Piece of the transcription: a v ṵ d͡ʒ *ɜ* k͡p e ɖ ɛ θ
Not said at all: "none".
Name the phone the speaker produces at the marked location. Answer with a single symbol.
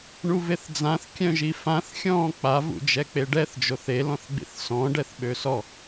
ɛ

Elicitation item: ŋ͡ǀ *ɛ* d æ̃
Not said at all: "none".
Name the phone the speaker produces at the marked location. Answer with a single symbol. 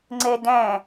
ɛ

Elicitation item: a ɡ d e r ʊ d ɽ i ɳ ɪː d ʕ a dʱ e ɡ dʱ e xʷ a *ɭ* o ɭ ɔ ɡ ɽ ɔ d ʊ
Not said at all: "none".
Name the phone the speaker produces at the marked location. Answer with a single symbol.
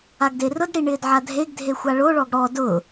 ɭ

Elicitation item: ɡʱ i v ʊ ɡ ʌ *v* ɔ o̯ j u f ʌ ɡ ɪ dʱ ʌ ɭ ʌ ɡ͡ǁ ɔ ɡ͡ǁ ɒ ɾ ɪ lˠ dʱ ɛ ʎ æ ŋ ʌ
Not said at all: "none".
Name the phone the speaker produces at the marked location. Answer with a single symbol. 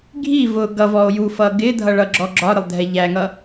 v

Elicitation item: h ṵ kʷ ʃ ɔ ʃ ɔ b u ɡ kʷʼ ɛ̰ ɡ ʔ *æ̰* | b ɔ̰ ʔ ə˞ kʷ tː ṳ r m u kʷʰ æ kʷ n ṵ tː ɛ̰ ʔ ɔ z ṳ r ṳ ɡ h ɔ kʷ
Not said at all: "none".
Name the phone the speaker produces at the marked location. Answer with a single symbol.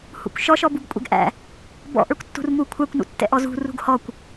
æ̰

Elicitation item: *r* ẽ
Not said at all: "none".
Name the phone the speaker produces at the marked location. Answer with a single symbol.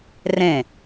r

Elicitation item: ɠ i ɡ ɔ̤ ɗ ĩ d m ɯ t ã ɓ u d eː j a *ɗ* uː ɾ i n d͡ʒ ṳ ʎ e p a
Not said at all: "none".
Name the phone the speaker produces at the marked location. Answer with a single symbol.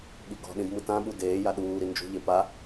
ɗ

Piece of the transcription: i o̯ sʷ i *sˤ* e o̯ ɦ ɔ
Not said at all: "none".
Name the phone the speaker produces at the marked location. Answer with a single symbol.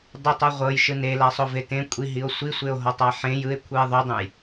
sʷ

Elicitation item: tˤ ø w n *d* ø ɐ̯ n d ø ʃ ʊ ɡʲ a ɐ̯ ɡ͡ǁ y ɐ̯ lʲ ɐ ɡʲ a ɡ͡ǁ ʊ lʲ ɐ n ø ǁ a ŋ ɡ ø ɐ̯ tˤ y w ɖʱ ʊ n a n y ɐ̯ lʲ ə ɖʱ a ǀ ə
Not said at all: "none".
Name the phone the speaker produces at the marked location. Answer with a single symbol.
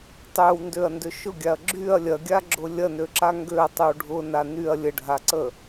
d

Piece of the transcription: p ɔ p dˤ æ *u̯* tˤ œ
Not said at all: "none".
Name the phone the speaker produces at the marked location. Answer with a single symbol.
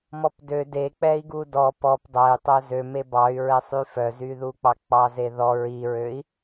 y̯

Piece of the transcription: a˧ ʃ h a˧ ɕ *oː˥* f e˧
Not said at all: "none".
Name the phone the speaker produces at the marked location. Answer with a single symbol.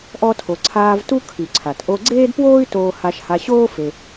oː˥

